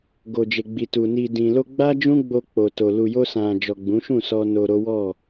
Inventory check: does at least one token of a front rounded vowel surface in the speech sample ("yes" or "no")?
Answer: no